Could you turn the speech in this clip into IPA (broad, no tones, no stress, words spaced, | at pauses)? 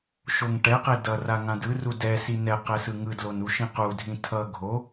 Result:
ʃoŋʈɛqe dʌra ŋãdɯru dɛ sinɛqɛ sɯŋɯdlon uʃĩqudʱĩ tʰʌ ɡʱo